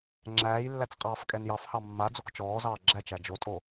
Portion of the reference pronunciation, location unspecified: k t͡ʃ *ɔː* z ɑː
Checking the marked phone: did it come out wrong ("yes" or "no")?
no